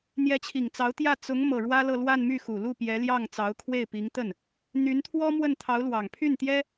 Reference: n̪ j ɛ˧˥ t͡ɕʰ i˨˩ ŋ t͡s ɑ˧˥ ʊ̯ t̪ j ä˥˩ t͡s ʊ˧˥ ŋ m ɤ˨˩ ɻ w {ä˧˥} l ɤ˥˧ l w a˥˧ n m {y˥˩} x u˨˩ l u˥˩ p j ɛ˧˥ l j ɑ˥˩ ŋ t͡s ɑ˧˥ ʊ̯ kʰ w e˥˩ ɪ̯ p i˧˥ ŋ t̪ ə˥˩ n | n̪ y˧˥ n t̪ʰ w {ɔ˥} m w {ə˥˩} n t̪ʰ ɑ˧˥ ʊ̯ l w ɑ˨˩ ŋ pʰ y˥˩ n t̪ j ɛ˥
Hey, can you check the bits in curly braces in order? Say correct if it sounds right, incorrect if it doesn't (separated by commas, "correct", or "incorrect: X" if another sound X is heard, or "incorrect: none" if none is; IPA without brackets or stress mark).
incorrect: ä˥, correct, correct, correct